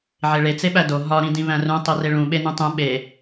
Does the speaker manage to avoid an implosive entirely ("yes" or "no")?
no